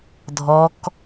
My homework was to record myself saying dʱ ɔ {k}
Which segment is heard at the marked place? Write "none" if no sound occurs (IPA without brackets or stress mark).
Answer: k